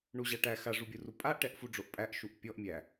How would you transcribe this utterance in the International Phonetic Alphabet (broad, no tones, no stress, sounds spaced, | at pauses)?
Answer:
ɳ u ʑ a ʈ æ x a ʐ u bʲ u r u pʼ a ʔ ʈ ɛ ʔ f u ɖ͡ʐ o ʔ pʼ æ ʔ ʃ u ʔ pʲ ɔ ʔ mʲ æ